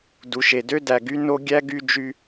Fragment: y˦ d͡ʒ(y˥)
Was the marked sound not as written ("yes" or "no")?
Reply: no